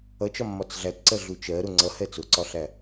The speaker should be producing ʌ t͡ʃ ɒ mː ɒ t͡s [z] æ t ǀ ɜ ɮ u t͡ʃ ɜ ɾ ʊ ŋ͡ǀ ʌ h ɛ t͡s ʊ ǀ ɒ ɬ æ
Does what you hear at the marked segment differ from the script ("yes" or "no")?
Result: yes